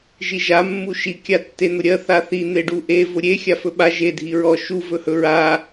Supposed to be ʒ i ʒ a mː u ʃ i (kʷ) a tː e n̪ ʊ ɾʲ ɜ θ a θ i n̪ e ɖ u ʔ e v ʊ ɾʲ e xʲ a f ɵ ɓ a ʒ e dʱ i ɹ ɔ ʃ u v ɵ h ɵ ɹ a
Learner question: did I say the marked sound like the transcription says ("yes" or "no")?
no